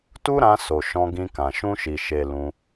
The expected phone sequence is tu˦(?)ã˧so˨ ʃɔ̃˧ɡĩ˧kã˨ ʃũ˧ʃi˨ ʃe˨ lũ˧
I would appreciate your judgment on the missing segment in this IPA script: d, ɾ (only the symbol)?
ɾ